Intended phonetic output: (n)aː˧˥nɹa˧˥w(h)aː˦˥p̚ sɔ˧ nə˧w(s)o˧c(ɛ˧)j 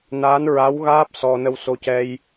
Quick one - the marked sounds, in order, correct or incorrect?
correct, incorrect: ɣ, correct, correct

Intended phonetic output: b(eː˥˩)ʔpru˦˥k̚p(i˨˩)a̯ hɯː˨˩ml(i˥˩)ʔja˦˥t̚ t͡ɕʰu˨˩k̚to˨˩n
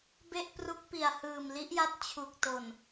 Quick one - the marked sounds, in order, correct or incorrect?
incorrect: e˥˩, correct, incorrect: i˦˥

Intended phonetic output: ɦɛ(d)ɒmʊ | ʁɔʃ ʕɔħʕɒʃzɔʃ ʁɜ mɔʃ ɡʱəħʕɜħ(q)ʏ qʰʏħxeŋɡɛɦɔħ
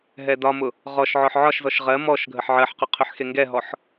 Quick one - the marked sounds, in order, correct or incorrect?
correct, correct

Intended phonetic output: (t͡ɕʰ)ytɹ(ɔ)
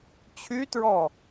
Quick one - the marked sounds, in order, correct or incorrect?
correct, correct

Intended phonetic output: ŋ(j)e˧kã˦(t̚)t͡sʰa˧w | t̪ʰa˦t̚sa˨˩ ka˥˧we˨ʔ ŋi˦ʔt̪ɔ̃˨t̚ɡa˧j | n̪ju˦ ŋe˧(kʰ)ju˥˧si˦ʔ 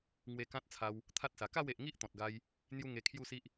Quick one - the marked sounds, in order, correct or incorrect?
incorrect: w, correct, correct

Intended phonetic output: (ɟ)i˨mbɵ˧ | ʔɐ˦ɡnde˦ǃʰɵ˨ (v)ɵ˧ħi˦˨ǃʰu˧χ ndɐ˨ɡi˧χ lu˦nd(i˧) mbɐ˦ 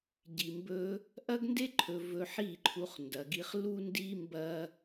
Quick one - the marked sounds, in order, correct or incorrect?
correct, correct, incorrect: i˦

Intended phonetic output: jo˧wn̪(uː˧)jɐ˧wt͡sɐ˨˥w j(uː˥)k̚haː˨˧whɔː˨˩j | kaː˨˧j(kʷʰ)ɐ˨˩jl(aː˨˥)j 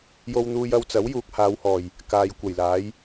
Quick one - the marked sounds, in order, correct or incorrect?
correct, incorrect: uː˨, incorrect: kʷ, correct

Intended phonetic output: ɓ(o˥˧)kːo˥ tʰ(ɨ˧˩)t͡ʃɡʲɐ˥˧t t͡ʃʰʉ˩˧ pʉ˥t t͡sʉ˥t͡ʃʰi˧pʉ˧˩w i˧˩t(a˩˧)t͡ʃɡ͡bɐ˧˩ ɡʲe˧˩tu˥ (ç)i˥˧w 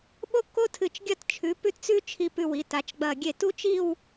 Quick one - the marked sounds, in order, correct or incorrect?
incorrect: o˥, correct, correct, incorrect: t͡ʃ

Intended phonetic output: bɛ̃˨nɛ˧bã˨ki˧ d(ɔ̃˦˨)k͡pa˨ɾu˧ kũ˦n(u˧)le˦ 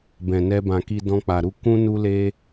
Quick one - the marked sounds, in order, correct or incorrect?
incorrect: ɔ̃˧, incorrect: u˦

